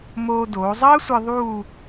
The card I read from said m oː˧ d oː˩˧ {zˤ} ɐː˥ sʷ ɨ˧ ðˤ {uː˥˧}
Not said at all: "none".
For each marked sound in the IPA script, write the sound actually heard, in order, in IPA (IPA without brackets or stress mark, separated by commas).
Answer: zˤ, uː˥˧